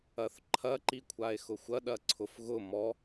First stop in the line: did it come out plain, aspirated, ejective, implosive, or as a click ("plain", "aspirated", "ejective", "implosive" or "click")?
click